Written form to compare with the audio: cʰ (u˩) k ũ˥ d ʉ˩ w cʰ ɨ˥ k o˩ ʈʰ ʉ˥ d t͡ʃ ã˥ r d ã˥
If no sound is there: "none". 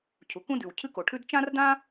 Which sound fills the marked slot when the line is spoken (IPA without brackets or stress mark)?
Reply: u˩